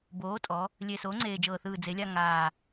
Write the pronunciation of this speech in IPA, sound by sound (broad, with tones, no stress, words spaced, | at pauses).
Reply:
boː˩˥tʼɔ˩˧ | lʲe˨˩ soː˩˥ŋ͡ǀeː˨˩d͡ʒɤː˨˩θɯː˨˩ d͡ze˩˧lʲa˦˨ ŋaː˨˩